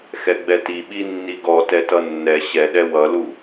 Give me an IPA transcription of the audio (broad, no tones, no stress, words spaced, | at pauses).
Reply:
xɛɡ͡bɛti ɓinːiɡɔ tɛtʌnːɛ ɕɛɗɛ wʌlu